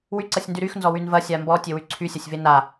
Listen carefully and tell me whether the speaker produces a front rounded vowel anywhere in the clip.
yes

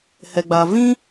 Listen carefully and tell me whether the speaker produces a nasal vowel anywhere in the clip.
yes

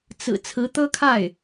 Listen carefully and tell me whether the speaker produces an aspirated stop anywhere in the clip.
yes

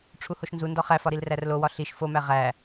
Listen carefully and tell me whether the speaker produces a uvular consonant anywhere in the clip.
yes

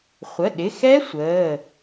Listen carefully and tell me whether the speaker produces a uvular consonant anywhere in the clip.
yes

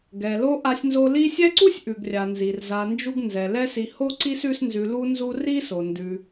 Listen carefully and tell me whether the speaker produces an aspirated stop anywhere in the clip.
no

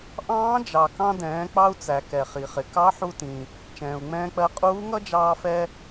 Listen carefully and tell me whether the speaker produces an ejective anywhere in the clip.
yes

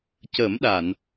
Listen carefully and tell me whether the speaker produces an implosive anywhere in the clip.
yes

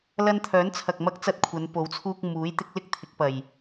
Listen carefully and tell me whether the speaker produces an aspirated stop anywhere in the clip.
yes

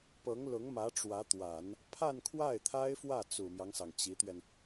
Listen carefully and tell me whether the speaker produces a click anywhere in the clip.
no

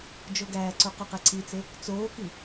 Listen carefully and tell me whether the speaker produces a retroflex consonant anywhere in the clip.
no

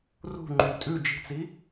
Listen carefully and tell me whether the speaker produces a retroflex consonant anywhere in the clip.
no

